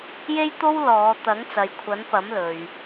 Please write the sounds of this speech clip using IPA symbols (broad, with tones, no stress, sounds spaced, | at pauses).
j e˥ j t̪ o˥ w l ɔː˨˧ t̪ ɐ˨˥ ŋ t͡s ɐ˨ j kʷʰ ɐ˨˥ n p ɐ˨˥ m l ɵ˨ ɥ